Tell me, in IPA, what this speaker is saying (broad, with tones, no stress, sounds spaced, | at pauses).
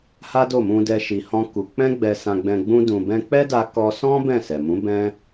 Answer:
h a˦ d o˦˨ m ũ˧ d ɛ˧ ʃ i˧ h ɔ̃˦ k u˧ k͡p ɛ̃˦ ɡ͡b ɛ˧ s ã˧ ɡ͡b ɛ̃˧ ɡ͡b ũ˦ d ũ˧ b ɛ̃˧ k͡p ɛ˦ d a˧ k ɔ˧ s ɔ̃˦ b ɛ̃˦˨ s ɛ˨ m ũ˨˦ b ɛ̃˦